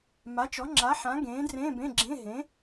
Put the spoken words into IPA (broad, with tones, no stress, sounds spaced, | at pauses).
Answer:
m a˨˥ t͡ʃ ɔ˨˥ ŋ͡ǁ a˨˥ ħ ã˨˥ ɡ ẽː˨˥ d r ẽː˧˥˧ b ẽ˧˥˧ ɡ͡ǁ ẽ˧˥˧ ɦ ẽ˨˥